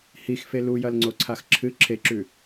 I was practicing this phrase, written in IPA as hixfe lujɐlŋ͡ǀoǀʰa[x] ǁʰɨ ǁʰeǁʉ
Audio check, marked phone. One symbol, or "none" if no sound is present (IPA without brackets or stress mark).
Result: x